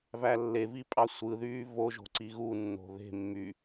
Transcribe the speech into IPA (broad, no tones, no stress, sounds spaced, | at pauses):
v æ lː e v i pʼ ɑ sʷ ɯ ð yː v o ʒ o̤ ǀ i ɣ u nː o̤ ð e̤ mː y